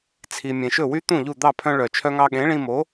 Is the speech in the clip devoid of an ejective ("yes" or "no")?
yes